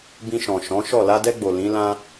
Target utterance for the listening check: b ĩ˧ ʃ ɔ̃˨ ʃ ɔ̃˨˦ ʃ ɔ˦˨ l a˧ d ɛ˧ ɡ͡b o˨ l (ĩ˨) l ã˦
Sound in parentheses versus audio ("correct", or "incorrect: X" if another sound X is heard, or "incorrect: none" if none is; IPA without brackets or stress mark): incorrect: ĩ˨˦